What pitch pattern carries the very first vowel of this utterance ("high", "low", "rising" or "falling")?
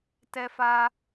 high